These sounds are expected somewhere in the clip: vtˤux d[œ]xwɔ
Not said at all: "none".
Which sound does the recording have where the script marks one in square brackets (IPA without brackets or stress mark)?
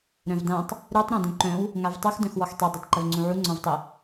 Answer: œ̃